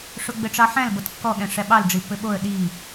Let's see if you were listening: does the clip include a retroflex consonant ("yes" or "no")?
yes